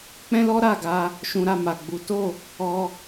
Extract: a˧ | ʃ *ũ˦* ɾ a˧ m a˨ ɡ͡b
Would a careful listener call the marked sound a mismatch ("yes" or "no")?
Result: yes